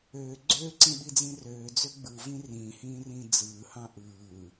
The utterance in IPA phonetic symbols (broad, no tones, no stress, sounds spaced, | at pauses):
øː ɡ͡ǀ ø ǀ ĩ ɓ i d͡z ĩ r øː d͡z ø ɡ͡b ɯ v ĩ r ĩː h ĩː r ĩː d͡z ɯː h ɑ̃ ʔ ɯː